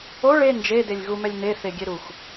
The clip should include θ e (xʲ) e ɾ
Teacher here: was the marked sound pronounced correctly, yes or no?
no